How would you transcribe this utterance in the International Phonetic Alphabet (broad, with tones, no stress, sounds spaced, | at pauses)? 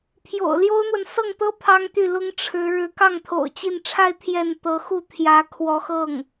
pʰ j o̰˨˩ ʊ̯ l j o˥ ʊ̯ n̪ w ə˨ n s ɤ˥˩ ŋ t̪ ɤ˥ pʰ ɑ˥ ŋ t̪ y˥˩ l ʊ˥ ŋ ʈ͡ʂʰ ɻ̩˧˥ ɻ ɻ̩˧˥ k ɑ˥˩ ŋ t̪ʰ o̰˨˩ ʊ̯ t͡ɕ i˥˧ n ʈ͡ʂʰ a˥˧ ɪ̯ t̪ʰ j ɛ˥˩ n t̪ ɤ˧˥ x u˥˩ t̪ʰ j ä˧˥ kʰ w ɔ˧˥ x ɤ˥˩ ŋ